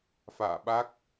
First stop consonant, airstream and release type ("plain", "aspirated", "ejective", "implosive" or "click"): implosive